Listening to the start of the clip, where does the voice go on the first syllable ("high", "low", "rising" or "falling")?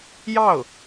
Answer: falling